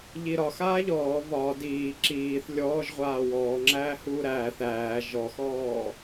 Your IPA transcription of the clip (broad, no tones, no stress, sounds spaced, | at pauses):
ʎ i ɾ ɒ x aː ʎ ɔː β ɒ d iː ǁ iː θ lʲ ɔː ʒ ʁʷ aː w ɔː ŋ͡ǁ æː h uː ɾ æː θ æː ʒ ɔ x ɔː